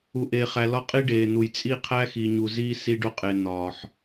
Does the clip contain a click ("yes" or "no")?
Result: no